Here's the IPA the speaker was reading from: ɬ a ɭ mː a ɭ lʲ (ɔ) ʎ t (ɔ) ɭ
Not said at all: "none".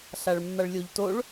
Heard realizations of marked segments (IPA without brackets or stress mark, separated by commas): o, o